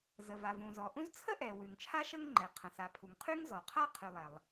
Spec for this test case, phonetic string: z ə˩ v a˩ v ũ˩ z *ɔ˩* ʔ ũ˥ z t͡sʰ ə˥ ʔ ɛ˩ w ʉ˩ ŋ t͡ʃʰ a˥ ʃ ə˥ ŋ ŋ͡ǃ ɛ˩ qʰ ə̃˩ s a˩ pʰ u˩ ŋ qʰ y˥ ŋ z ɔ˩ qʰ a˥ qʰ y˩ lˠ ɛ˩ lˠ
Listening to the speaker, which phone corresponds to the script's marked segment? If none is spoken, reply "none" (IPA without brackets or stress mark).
ɔ˩